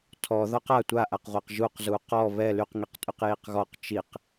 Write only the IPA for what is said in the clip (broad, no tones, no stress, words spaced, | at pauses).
tʰɔ ðɔqa tʷaʔaqʁʷaq ʒuq zuqɔ βɛ lyqŋiqtʼyq jiqɣɔq t͡ʃiq